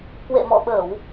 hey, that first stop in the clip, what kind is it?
plain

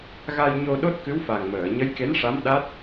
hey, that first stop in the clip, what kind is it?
implosive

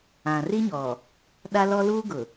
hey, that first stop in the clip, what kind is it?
implosive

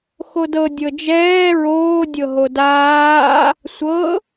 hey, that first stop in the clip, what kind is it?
plain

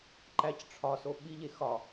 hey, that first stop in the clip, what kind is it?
click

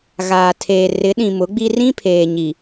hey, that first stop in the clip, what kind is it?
aspirated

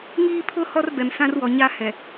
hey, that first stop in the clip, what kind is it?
aspirated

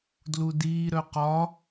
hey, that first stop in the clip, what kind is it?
plain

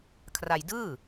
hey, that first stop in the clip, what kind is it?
aspirated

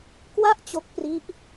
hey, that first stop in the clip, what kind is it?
plain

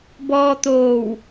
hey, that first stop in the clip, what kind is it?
plain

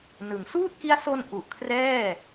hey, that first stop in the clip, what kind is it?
plain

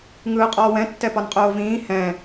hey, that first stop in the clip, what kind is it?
ejective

